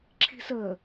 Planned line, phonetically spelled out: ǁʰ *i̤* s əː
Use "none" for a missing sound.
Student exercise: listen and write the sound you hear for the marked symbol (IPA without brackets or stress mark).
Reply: i̤